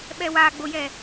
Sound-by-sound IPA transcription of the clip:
ɓ ɛ w a ɡ͡b o j ɛ

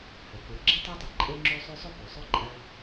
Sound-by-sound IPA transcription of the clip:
h ɵ˩ k u˩ ɡ͡ǁ i˥ tˤ o˥ tˤ ɵ˨ ǃʼ e˦ ŋ͡ǁ u˦ sˤ ʉ˦ sˤ ɵ˥ p o˩ sˤ ɵ˥ ǃʼ ɐ˦

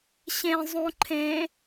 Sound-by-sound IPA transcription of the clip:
ɕ ẽ zˤ ũ ǃʰ ẽ

